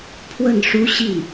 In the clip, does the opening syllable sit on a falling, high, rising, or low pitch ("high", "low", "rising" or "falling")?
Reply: falling